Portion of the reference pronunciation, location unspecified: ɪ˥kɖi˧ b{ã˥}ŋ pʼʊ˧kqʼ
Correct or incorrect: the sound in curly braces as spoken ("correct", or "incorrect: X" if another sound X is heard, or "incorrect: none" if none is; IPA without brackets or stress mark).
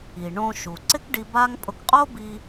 incorrect: a˥